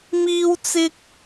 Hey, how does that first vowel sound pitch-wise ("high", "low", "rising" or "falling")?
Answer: high